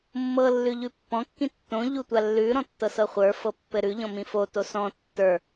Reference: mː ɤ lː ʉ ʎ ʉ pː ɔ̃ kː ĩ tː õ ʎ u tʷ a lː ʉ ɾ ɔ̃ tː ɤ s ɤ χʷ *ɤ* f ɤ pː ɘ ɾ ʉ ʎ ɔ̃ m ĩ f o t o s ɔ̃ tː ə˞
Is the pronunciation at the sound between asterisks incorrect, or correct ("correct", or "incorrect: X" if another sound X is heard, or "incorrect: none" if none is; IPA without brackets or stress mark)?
incorrect: ə˞